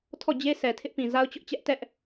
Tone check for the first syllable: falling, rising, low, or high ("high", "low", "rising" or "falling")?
falling